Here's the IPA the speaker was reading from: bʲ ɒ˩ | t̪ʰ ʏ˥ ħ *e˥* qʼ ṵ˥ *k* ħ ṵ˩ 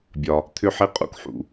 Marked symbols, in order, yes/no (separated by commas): no, yes